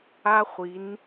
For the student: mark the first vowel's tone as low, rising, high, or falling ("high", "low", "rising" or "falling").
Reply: high